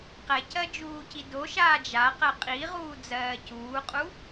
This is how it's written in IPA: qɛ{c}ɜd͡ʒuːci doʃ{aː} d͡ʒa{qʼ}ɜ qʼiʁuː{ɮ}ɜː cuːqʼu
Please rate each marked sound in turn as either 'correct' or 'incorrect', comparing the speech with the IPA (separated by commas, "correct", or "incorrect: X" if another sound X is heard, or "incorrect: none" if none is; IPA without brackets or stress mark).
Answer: correct, correct, incorrect: q, incorrect: d͡z